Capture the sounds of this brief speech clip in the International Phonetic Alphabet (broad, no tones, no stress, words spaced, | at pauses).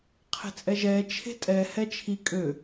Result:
qʰe̤t͡sʼɛʒɛː t͡ʃʰe̤tʼɛ hɛt͡ʃʰi kʼø